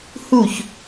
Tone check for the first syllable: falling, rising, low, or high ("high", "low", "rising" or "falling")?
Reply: falling